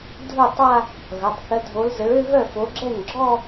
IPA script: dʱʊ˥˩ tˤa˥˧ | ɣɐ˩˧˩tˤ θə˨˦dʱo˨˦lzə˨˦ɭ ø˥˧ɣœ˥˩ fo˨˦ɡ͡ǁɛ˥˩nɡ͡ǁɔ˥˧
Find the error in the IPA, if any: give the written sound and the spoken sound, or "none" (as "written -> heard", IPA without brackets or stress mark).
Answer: none